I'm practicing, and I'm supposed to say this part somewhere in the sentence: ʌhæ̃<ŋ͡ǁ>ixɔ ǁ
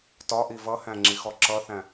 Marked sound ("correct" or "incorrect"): correct